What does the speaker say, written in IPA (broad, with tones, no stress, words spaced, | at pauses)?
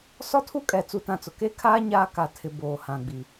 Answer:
sɔ˦tʰu˦kʼɛ˨ t͡su˦tã˦t͡sʊ˨ ke˦kʰaː˦ ɲaː˦ka˨ tʰɪ˨ boː˨hã˨ɡ͡bi˨